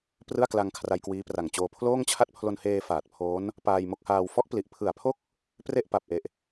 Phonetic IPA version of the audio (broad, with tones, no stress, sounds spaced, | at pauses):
p r ɯ˥˩ a̯ k l a˧ ŋ kʰ r a˧ j k w iː˦˥ p r a˨˩ ŋ t͡ɕ oː˧ pʰ l oː˥˩ ŋ t͡ɕʰ a˥˩ t̚ pʰ l o˧ n h eː˧ f aː˨˩ t̚ pʰ oː˦˥ n | p aː˧ j m o˦˥ k̚ h aː˧ w f ɔ˦˥ ʔ p l i˨˩ ʔ pʰ ɯ˨˩ a̯ pʰ o˥˩ k̚ | p r e˥˩ ʔ p a˨˩ p̚ ʔ e˨˩ ʔ